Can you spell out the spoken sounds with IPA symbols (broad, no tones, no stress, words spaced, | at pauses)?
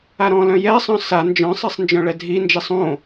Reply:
aɾɔ̃lœ̃ jɛsˤœ̃ sa nd͡ʒœ̃sˤesˤ nd͡ʒœ̃ɭɛdʱind͡ʒisˤ õ